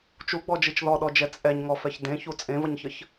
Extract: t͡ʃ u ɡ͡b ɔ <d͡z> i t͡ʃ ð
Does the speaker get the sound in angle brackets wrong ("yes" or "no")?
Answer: yes